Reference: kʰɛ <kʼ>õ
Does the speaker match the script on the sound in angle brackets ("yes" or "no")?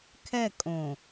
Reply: yes